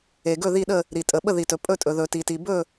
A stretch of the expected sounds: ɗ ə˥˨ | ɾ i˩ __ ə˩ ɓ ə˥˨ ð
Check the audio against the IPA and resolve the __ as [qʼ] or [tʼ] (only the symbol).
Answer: tʼ